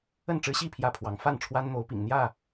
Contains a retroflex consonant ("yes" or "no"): yes